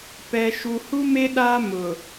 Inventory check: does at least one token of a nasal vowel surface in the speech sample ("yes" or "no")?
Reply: no